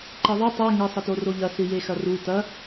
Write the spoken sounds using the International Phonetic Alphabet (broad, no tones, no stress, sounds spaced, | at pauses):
ǃ e ðˤ i tˤ ɛ ŋ ɘ sˤ ɘ t o r o ʎ ɐ s ɨ j e x ɐ r u t ɐ